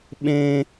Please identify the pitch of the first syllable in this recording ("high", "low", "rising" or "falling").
high